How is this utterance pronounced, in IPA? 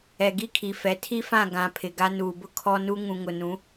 ɛ˨ɡi˦kʰi˨fɛ˨˦ tʰi˦fã˦˨ ɡã˨ pʰɪ˨ɡa˦ nuː˨bʊ˦ kʰɔ˦nu˦ ŋũ˨ŋʊ˨nũ˨˦

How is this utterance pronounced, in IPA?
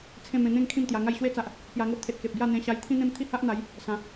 t͡sʰẽ˥˧ mẽ˧n̪ẽ˥˧ŋ kʰĩ˥˧mt̪ja˧ŋa˥˧j ɕwe˦t͡sa˨ʔ | pja˧ŋo˦ʔt̪ʰe˨t̚ ke˨p̚ɡja˥˧ n̪ẽ˧ɕa˧j t̪ʰĩ˦n̪ẽ˦m t̪ʰi˥˧ha˦ʔn̪a˨˦j | sã˨˦

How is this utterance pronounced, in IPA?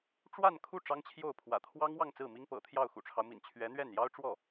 ʈ͡ʂwa˥˧nkʰu˥˩ ʈ͡ʂɑ˥ŋt͡ɕʰjo˥˩ʊ̯ pʰwä̰˨˩t̪ʰwɑ˥ŋwɑ˥˧ŋ t͡sɹ̩˥˩mi˥ŋpɤ̰˨˩t̪ʰjɑ˥˩ʊ̯ xṵ˨˩ʈ͡ʂʰɑ˦ʊ̯mḭ˨˩n t͡ɕʰɥɛ˧˥n̪ɥɛ˥˩njɑ˥ʊ̯ʈ͡ʂwɔ˥˩

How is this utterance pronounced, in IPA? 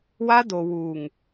wa˦do˨ wuː˨ŋ

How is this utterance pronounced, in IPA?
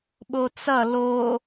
ɓot͡sʌ lo

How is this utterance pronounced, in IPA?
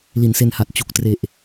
li˩˦nse˧nha˨˩t̚ t͡ɕu˨˩k̚tre˨˩ʔ

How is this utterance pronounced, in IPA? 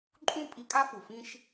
ǃʼũ˦ pʼi˦ kʼa˦fu˨fĩ˦ʃ

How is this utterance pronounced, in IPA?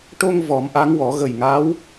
ʈo˧ŋ vɔ˨˩˦mʔa˧˥ŋwɔ˨˩˦ ɣə˨˩jŋa˧˥w

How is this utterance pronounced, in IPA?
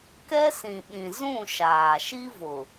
kɛ˦sĩ˨ɓĩ˨ zũ˦˨ ʃaː˨ ʃi˦vʊ˨

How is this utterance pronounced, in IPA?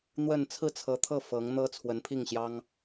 n̪wə˥˧n t͡sʰɹ̩˥˩t͡sʰɤ˧˥t̪ʰɤ˥˩ fɤ˧˥ŋn̪ɤ˥ t͡sʰwə˧˥npʰi˥˩ŋɕjɑ˥ŋ

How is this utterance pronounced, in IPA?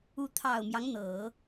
u˧˥t̪ʰɑ˨˩ʊ̯mjɑ˦ŋ n̪ɤ˨˩˦

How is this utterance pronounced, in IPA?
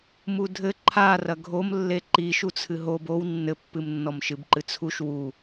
mudʱɘ ǃʰa rɐɡʱomlːe ǃiʃut͡sʰɨ ɦob ow nːɘpːɨm nːɔmʃɨbǃɨt͡sʰuʃ wu

